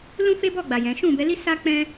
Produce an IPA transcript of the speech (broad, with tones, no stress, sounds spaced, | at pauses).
l ũ˦ f e˦ b ɔ˦˨ ɡ͡b a˨ j ɛ̃˨˦ ʃ ũ˦˨ b ɛ˨˦ l i˦ s a˦ k͡p ɛ̃˦